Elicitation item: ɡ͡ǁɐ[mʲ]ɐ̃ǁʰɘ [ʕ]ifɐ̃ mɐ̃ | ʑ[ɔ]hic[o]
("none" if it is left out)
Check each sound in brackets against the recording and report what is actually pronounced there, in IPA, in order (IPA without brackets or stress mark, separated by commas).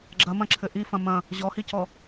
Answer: m, ʔ, ɔ, ɔ